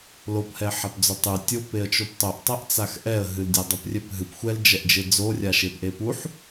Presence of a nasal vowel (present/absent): absent